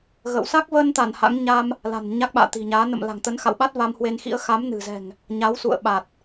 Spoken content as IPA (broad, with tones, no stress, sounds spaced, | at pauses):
ɣ ə̰˧˨ w s a˦˥ k̚ v ə˧ n t̪ a˧˩ n h a̰˧˥ ŋ ɲ a˧ m | l a̤˨˩ n ɲ a˦˥ k̚ ɓ a̰ː˧˨ t̪ i̤˨˩ ɲ aː˨˦ n ə̰˧˨ m l a̤˨˩ ŋ t̪ ə˨˦ n x a̰˧˨ w ɓ a˦˥ t̚ v a˧ m h w e˧ n x ḭ˧˥ ə̯ x a˨˦ m n ɨ̤˨˩ z ɛ̤˨˩ ŋ | ɲ a˨˦ w s ṵ˧˨ ə̯ ɓ a˨˩ t̚